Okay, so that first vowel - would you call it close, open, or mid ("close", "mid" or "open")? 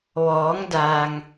mid